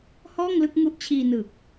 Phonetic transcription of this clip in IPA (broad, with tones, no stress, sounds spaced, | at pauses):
h ɔː˥˩ ŋ l ɯ˥˩ k̚ ŋ u˦˥ ʔ t͡ɕʰ iː˧ n ɯː˨˩ k̚